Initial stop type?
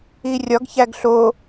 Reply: plain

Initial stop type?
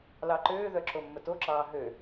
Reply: click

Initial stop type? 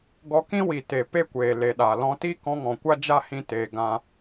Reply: plain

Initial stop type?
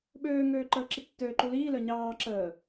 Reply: implosive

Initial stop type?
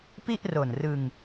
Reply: plain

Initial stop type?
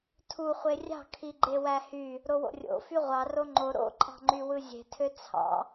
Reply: aspirated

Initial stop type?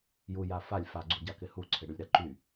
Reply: click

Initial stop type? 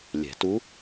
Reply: plain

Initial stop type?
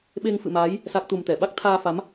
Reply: implosive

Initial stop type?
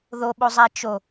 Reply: implosive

